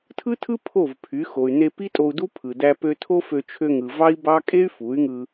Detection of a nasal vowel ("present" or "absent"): absent